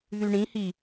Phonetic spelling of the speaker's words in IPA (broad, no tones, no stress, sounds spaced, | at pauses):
ð y ɳ ĩ h i